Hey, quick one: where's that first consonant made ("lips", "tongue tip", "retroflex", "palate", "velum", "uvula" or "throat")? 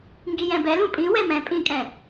velum